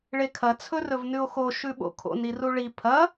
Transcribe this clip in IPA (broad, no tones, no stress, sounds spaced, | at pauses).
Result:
ɭ e kʰ ɐ t͡sʰ ɵ r ɵ v n ʉ o̯ x o ʃ ʉ ɓ o̰ kʰ o̰ n i r u ɭ i pʰ ɐ